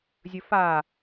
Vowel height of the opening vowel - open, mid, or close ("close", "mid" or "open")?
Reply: mid